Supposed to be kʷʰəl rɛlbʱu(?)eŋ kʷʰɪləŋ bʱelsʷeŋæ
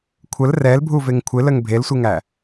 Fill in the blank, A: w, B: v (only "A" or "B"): B